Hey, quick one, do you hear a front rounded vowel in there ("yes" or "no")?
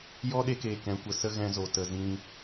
no